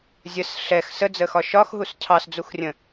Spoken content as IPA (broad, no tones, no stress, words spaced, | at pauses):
zʲəs ɬɛx səd͡zəxɒ ʃɒxɦus cʰɑsd͡zuxrʲə̃